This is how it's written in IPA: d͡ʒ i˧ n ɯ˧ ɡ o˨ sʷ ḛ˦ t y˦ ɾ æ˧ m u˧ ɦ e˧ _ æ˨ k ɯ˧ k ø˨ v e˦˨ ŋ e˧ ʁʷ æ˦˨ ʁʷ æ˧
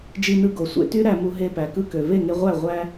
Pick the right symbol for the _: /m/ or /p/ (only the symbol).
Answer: p